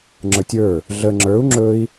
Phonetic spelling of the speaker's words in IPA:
ŋ͡ǁ ə˞ tʲ ə˞ | ɮ ə ŋ͡ǁ ə˞ u̯ ŋ͡ǁ ɵ i̯

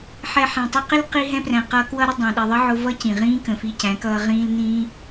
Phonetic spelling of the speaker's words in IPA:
ħ ɛ˨ ħ æ̃˨ tˤ ʌ˧ q ɪ˦ l q i˧ ɦ ɛ̃˧ p r æ̃˨ q ʌː˧ k w ʌ˧ ɾ ɪ˧ dˤ ɑ̃˨ ɗ i˨ ðˤ ʌ˦ ʕ ʊ˧ v ʌ˦ c ĩ˨ ʁ ĩː˦ k ə̃˨ f i˧ c æ̃˨˦ k ʌː˧ ʁ ĩː˧ l n ĩː˧

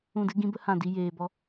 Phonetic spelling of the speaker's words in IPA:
ũ˦˨ d ɨ˦ ɡ ĩ˦ b ə˦ h ã˦˨ d i˦ j eː˧ b ɔ˦

